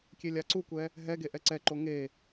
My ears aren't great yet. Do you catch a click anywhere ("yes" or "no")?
yes